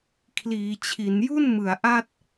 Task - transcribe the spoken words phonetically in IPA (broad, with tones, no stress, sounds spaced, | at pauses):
kʰ l iː˩˦ t͡ɕʰ i˩˦ n j u˥˩ n m ɯ˩˦ a̯ ʔ a˥˩ t̚